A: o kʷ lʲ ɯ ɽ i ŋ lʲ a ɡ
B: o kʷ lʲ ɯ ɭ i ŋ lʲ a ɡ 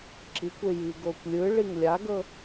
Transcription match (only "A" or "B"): B